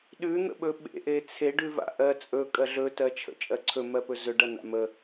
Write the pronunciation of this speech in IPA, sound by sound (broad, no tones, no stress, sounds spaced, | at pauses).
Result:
ɗ ʉ n̪ ə̰ ɓ ɵ ɓ ḛ ʔ e t͡sʰ e ɖ ʉ v a̰ ʔ ɜ t͡sʼ ɵ kʼ ɜ ɮ ɵ t ɜ t͡ʃʰ ə̰ t͡ʃʼ ɜ ǀʰ ɵ m ɜ p ɵ z ɵ ɖ ɐ n a̰ m ə